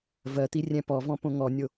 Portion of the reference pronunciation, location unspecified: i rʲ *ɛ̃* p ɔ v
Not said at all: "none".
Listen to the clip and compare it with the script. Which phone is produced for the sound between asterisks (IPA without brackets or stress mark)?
ɛ̃